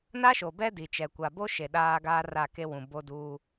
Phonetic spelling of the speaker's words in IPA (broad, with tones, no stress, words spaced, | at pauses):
na˦ʃo˨bɛ˦ di˨t͡ʃɛ˨ kʷa˨bo˦ʃe˨ ɗaː˦ɡaː˦ra˦˨ ke˦wũ˨ bo˦duː˦